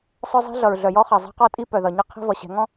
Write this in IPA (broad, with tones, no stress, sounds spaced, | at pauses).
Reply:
sˤ œ˦ zˤ i̤˦ ɮ ʌ˨ ɹ ɮ œ˨ j ɔ˦ χ ɜ˨ zˤ ɛ̤˦ q ɔ˦ tʼ i˦ p œ˨ ð ʌ˨ ɲ ʌ˦ qʰ i̤˦ v ʌ˨ ɕ ɛ̤˨˦ ŋ ɔ̃˦